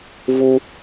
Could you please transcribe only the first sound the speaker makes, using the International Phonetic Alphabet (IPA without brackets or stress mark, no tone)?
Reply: v